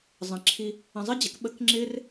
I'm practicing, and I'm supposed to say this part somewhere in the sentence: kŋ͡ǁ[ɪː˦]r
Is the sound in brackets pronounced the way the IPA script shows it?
yes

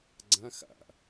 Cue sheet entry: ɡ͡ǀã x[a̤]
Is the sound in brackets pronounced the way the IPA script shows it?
no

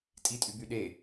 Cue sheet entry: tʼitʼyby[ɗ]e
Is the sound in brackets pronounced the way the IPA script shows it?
yes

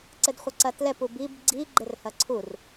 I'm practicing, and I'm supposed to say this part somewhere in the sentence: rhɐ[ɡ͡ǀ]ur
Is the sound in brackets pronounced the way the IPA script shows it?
no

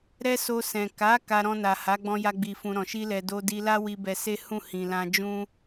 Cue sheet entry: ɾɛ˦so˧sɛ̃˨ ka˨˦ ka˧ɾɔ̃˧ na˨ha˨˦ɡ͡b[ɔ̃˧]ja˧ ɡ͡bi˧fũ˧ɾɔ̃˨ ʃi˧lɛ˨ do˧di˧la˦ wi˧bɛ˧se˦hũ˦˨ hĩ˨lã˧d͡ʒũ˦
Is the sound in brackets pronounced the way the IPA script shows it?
yes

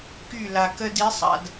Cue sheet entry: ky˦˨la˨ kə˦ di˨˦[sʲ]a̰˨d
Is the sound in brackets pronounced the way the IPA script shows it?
no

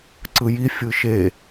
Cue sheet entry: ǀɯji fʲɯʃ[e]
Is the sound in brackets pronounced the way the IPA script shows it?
yes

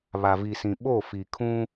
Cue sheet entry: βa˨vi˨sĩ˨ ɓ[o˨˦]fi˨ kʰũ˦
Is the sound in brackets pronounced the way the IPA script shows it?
no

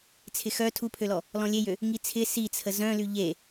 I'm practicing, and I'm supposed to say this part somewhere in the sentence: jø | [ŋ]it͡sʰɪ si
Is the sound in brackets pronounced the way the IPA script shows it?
yes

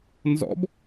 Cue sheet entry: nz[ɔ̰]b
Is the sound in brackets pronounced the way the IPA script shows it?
yes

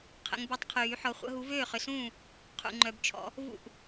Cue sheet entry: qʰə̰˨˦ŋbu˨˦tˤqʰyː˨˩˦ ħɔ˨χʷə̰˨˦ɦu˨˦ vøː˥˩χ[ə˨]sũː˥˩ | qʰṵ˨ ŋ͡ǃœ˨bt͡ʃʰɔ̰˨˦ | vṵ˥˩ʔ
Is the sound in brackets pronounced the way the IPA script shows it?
no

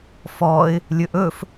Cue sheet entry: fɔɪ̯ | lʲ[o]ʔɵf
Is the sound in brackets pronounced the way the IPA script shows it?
no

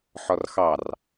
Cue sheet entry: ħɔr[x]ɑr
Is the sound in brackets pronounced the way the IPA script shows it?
yes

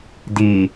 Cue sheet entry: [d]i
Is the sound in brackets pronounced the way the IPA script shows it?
yes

